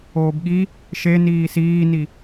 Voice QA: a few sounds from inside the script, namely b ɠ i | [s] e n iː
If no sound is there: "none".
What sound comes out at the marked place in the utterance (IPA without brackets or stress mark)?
ʃ